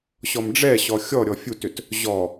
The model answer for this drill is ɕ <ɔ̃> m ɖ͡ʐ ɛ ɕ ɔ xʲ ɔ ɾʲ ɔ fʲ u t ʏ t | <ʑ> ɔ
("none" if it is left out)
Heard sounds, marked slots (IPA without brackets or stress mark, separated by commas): ɔ, ʑ